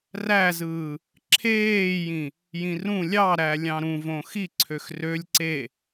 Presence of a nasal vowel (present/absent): present